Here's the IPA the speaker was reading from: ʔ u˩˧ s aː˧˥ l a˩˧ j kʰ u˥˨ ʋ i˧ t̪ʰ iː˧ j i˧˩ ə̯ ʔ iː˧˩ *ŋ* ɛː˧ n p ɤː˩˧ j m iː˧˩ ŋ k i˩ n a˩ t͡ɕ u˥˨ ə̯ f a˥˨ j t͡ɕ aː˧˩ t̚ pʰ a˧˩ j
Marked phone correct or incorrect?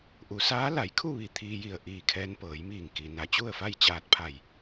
incorrect